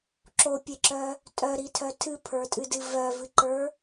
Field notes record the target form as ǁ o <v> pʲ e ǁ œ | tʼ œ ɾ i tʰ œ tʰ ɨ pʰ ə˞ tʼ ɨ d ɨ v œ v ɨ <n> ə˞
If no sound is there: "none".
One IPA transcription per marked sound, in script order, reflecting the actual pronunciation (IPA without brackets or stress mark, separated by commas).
none, ǃ